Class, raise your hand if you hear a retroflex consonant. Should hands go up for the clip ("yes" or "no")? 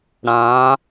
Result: yes